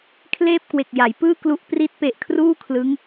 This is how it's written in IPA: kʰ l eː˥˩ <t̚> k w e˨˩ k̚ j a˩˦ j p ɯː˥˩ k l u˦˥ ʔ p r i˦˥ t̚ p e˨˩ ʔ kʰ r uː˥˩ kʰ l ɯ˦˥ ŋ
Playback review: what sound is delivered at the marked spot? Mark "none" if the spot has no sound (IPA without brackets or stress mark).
p̚